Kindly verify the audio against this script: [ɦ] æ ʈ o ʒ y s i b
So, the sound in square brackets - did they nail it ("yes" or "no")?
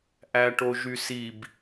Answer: no